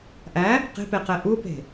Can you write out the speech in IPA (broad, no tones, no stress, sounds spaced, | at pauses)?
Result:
ʔ æ | q e̤ p e q ɛ ʔ u p e̤